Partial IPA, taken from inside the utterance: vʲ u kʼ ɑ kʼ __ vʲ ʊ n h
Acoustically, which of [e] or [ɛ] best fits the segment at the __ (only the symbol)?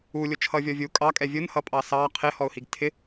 ɛ